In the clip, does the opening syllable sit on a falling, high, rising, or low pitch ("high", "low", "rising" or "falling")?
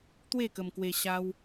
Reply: falling